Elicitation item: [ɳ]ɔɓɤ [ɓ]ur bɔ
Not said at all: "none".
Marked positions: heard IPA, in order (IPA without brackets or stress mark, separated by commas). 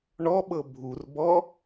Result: ɳ, bʱ